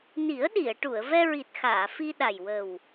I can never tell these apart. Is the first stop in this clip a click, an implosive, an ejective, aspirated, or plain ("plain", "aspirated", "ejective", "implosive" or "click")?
implosive